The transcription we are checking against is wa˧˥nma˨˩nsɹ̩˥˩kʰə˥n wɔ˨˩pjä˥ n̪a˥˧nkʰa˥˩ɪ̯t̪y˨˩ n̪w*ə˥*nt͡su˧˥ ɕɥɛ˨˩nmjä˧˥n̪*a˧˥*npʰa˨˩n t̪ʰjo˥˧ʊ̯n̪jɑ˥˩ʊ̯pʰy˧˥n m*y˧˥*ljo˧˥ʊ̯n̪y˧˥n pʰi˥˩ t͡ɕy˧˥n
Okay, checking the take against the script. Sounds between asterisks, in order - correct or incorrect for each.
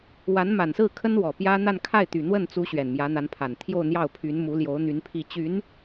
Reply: incorrect: ə˥˩, correct, incorrect: u˧˥

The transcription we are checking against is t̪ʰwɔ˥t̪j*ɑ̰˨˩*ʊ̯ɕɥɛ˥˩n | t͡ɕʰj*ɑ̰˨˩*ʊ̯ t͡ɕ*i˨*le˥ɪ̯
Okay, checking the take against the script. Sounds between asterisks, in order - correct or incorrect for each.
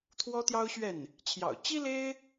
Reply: incorrect: ɑ˥, correct, incorrect: i˥

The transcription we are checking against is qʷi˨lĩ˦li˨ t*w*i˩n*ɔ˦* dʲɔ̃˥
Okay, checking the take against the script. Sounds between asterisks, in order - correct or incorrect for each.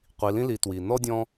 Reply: correct, correct

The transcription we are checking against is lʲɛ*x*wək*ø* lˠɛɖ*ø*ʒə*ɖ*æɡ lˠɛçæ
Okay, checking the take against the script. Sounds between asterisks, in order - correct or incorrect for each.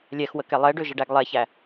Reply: correct, incorrect: ɛ, correct, correct

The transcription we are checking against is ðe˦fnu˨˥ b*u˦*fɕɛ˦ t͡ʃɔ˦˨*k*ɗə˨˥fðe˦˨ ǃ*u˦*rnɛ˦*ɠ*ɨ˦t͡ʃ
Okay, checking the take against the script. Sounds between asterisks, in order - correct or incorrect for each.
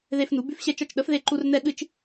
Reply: incorrect: ʉ˦, incorrect: t͡ʃ, correct, correct

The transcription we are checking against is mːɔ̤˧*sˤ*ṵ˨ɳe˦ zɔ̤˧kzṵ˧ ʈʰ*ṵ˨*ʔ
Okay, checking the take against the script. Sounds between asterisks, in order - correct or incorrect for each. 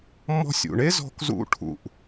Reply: incorrect: sʲ, correct

